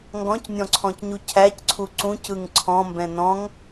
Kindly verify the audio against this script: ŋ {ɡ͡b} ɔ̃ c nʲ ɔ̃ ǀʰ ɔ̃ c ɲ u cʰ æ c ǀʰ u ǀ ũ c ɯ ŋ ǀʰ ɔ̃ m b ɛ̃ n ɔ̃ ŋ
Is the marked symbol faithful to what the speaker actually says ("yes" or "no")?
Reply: no